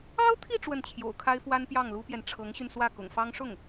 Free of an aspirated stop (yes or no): no